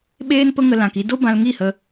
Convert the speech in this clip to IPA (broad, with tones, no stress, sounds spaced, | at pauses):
ɓ eː˦ n p ə˦ ŋ ə˧ l ã˧ k i˦ d o˦ b ã˧ l ŋ i˦˨ h ə˧